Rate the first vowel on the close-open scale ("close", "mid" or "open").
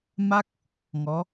open